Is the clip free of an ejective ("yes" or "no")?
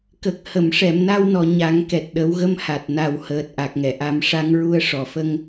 yes